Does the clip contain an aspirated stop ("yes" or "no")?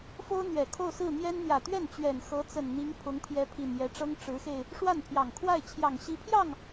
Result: yes